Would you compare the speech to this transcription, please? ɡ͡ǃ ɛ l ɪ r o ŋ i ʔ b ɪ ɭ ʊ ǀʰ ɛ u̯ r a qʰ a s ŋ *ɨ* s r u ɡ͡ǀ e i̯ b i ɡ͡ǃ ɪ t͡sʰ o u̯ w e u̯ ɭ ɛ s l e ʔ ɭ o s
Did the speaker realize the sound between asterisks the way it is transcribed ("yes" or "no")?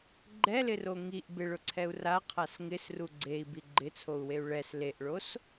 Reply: no